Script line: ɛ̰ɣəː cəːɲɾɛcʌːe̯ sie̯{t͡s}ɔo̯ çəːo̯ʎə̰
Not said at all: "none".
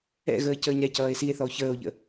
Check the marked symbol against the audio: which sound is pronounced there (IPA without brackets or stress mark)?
θ